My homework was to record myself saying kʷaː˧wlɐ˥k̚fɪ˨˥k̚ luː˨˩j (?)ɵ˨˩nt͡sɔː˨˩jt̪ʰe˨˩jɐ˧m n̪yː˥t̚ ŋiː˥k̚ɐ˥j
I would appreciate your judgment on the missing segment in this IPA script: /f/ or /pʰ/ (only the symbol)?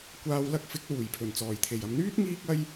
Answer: pʰ